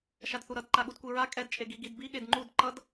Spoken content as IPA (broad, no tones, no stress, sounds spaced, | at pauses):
ʃ a d θ u ɾ ʌ d ǃ a ɠ u d kʷ i ɹ a kʼ ɛ d t͡ʃʼ e ɡ i ɡ i d b i ɠ e d ŋ͡ǃ u d ǃ ʌ d